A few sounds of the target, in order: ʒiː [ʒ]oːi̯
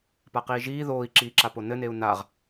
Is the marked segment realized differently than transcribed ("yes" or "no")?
yes